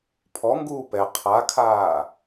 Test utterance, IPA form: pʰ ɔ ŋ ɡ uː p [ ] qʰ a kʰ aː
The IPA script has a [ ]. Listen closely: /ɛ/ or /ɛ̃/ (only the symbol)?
ɛ